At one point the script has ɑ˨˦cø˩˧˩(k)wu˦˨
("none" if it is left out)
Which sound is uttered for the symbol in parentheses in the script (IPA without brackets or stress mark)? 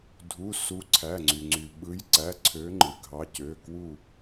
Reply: k